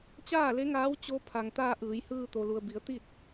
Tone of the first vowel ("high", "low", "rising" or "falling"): falling